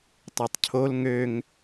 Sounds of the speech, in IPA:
tˤ ø tˤ cʰ o l ŋ ø ŋ

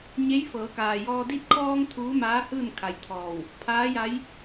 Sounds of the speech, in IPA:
ɲ e˧˥ j f ɤː˩˧ k aː˩ j ɔː˧ d i˧ t̚ kʰ ɔː˧ ŋ t̪ʰ uː˧˥ m aː˧˥ h ɯː˥˨ n kʰ a˧ j t̪ʰ ɔː˧˩ w | pʰ aː˧˥ j a˧˥ j

